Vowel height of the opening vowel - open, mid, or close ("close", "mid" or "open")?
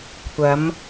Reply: open